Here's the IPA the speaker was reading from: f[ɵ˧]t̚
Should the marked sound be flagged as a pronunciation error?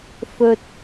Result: no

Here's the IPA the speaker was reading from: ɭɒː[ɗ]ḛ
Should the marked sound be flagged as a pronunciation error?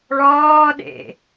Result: no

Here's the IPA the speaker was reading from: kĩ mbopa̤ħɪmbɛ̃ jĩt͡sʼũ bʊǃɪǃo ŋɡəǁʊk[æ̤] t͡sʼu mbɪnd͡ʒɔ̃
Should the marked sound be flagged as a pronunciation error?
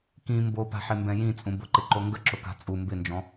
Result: yes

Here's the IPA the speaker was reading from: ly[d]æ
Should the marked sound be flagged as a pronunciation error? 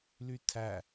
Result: yes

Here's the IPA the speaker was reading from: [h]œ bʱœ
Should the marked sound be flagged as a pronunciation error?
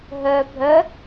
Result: yes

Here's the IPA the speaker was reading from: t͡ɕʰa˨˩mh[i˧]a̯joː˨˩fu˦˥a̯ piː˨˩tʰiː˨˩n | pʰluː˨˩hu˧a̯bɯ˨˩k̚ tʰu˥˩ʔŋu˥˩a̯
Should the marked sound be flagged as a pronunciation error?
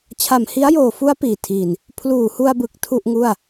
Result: yes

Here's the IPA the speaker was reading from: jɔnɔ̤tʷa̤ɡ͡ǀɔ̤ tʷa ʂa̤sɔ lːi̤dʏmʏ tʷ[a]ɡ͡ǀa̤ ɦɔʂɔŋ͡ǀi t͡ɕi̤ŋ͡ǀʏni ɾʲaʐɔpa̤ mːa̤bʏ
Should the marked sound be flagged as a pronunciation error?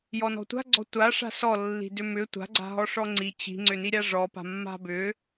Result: yes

